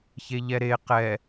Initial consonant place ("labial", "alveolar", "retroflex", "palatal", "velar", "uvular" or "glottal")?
palatal